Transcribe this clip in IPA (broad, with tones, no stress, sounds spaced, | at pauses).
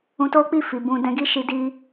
ũ˧ t o˦ k͡p i˦˨ f i˨ b ũ˧ d ɛ̃˧ ɡ i˦ ʃ i˧ d i˧